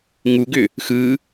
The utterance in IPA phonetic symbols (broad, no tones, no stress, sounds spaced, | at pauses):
ŋ u ɡ ʏ | x ɯ